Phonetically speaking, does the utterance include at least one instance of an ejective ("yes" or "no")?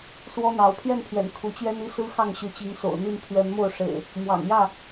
no